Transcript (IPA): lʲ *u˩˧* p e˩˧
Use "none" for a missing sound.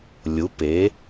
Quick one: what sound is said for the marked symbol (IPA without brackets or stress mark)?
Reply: u˩˧